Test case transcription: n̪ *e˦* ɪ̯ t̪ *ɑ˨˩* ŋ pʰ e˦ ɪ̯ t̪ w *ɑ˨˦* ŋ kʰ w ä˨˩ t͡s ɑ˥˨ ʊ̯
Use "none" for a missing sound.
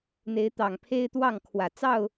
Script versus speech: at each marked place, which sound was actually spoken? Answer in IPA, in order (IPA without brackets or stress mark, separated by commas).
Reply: e˨˦, ɑ˨˩, ɑ˥˨